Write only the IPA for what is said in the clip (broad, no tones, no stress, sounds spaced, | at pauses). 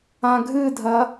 ã ɡʱ ɨ dʱ ɐ